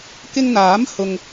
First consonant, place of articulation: velar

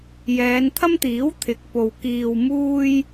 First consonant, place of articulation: palatal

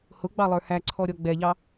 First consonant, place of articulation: glottal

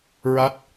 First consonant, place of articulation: alveolar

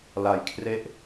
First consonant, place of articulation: alveolar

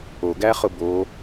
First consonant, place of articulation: velar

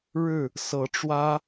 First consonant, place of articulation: retroflex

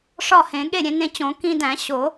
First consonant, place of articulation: retroflex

